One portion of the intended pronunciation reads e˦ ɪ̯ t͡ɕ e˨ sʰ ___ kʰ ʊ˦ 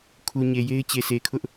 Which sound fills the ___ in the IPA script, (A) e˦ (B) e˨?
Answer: B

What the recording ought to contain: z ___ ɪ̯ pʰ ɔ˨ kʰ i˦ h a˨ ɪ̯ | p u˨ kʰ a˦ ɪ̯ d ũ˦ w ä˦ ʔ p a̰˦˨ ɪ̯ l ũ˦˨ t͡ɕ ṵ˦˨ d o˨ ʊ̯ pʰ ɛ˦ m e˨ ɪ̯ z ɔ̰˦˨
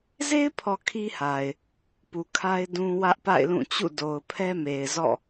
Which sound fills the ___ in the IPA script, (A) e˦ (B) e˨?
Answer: A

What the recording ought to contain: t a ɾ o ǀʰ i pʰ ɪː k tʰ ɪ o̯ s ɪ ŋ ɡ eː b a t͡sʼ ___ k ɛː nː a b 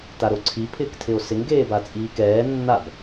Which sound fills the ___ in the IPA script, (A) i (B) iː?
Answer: B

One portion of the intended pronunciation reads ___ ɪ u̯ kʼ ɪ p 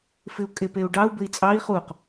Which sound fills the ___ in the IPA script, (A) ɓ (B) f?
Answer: B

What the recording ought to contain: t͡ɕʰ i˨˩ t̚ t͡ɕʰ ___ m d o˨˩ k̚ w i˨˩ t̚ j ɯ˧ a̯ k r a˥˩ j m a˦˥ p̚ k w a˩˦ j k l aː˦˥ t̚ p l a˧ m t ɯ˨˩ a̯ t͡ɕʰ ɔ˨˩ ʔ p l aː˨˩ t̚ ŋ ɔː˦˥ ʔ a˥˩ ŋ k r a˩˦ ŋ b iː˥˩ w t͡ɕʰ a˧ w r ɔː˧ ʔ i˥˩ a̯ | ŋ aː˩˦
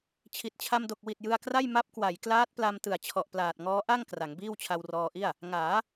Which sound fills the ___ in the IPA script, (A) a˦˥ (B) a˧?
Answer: B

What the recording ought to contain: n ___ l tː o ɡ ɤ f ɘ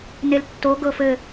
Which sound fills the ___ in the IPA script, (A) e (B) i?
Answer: A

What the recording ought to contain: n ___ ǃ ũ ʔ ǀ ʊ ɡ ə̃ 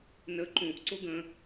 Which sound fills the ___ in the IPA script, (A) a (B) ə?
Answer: B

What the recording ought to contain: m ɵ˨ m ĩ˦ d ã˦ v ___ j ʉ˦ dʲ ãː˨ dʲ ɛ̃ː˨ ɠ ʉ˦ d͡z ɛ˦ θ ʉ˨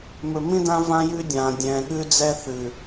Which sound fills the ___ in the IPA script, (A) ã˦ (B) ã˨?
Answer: A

